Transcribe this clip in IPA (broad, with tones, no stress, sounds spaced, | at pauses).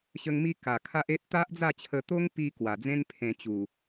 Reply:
ɕ ə˧ ŋ m i˧ k a˨˩ kʰ a˦ ʔ e˦ t̚ t̪ a˦ ʔ d͡z a˥˧ t͡ɕʰ ə˧ t̪ o˦ ŋ p i˧ k w a˨˩ d͡z ẽ˦ n pʰ ẽ˧ t͡ɕ u˨˩